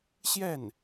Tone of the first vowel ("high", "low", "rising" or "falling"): falling